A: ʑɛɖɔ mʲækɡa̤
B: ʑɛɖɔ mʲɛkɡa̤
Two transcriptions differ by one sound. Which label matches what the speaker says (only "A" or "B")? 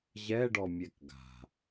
B